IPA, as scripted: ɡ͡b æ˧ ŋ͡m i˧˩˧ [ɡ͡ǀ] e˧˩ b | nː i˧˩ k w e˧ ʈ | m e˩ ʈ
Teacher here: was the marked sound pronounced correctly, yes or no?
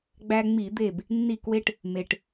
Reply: no